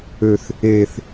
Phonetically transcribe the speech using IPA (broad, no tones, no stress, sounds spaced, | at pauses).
ø θ | e θ